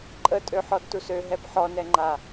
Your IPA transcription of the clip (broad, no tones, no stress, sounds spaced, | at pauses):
ǃʼ ə tʼ ø ħ ɔ d t u s ø ɦ ɛ b ħ ɔ n ɛ ŋ͡ǃ a